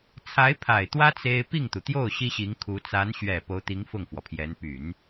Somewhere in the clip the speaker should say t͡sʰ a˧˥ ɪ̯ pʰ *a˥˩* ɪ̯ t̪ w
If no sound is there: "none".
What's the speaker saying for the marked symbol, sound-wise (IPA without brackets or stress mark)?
a˨˩